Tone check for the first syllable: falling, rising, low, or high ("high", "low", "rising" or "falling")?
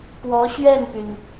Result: rising